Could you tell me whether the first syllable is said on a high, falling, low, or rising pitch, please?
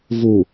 low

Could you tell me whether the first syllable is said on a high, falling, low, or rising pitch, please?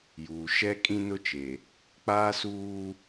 low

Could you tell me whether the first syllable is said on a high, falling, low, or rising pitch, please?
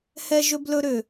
high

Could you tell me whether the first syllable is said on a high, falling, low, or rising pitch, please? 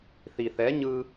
low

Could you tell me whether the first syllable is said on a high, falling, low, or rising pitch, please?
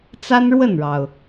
high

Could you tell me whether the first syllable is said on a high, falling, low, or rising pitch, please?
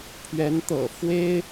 rising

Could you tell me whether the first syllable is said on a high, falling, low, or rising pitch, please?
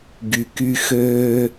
low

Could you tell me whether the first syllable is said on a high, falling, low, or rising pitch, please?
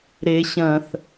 low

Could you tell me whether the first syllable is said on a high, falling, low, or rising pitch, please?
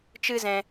high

